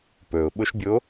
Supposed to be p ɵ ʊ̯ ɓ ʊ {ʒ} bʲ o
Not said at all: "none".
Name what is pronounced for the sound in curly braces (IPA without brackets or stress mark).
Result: ʃ